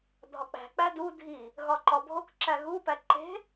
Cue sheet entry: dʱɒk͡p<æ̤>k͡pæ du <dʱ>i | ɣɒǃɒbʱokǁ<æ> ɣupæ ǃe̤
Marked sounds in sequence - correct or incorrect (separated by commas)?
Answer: correct, correct, correct